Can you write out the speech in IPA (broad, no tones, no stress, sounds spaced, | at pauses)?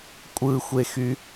kʷʼ ɯ xʷ e x y